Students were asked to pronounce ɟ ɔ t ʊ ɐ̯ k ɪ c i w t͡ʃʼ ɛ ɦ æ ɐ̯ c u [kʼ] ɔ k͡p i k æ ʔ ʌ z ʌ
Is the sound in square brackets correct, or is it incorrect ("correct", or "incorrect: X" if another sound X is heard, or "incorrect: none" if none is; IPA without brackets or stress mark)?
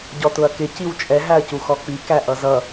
incorrect: x